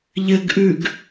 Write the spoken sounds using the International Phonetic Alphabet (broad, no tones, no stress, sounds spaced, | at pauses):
ʎ ɘ ɡ ʔ ʉ ɡ